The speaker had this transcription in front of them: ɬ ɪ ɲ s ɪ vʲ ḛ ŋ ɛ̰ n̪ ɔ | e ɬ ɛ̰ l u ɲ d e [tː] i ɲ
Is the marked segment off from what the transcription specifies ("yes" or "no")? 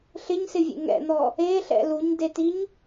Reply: yes